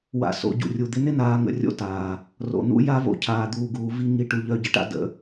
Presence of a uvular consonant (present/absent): absent